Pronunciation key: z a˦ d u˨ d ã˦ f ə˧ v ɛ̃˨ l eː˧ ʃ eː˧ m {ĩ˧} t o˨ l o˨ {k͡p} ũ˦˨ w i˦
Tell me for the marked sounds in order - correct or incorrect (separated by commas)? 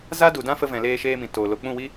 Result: incorrect, correct